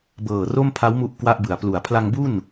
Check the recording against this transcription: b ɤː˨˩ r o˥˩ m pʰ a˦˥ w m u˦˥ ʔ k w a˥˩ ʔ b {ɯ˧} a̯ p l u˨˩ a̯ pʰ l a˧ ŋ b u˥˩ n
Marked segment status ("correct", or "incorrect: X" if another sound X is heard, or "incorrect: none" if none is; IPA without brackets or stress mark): incorrect: ɯ˨˩